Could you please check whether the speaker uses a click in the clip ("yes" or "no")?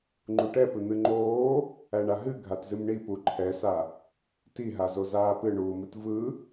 yes